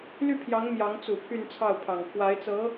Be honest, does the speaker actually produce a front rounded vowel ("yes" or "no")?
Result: yes